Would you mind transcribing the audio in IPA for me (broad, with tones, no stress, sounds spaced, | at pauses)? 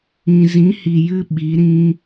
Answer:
ĩ˨ z ĩ˨˦ h i˨ j ɨ˧ ɓ i˨˦ ɾ ĩ˦